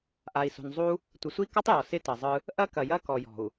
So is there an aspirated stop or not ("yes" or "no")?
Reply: no